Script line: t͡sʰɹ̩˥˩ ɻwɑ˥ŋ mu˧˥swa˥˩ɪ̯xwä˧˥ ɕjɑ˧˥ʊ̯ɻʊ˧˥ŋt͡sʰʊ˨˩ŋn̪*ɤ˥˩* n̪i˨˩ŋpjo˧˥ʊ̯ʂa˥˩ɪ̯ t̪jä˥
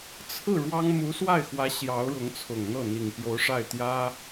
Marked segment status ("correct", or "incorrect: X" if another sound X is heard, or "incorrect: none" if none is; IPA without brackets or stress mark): correct